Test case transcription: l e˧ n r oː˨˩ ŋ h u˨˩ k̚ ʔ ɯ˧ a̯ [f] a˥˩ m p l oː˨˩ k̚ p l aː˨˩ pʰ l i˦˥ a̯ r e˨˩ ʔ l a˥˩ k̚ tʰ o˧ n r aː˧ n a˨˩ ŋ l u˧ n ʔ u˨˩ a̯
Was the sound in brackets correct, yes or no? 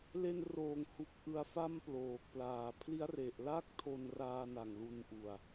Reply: yes